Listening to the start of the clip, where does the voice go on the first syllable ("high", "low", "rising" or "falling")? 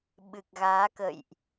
low